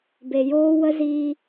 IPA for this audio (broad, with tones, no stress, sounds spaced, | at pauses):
b e˧ j oː˦ w ə˦ z iː˧